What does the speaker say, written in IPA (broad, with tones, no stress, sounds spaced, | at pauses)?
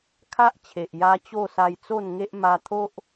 kʰ a˦ ʔ t͡ɕʰ e˨ ʔ j a˦ t͡ɕ o˥˧ s a˧ j t͡s o˥˧ n ŋ e˦ ʔ m a˧ t̪ʰ o˦ ʔ